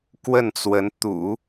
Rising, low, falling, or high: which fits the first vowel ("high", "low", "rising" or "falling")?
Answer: falling